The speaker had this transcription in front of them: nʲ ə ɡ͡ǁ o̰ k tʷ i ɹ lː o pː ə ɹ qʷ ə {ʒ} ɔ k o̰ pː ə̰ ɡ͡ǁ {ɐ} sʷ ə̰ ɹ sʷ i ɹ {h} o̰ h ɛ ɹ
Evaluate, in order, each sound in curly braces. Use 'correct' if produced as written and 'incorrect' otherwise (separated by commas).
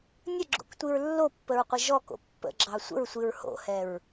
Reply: correct, incorrect, correct